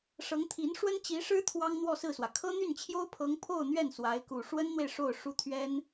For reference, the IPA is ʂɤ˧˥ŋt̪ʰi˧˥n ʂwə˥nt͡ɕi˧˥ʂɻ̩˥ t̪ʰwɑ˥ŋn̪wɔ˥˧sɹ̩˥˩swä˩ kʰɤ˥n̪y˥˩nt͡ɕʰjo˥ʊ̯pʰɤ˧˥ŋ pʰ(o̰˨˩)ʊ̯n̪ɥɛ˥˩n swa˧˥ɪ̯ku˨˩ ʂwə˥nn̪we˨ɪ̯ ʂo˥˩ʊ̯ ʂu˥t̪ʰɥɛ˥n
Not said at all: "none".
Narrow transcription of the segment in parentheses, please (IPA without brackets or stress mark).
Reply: o˥˧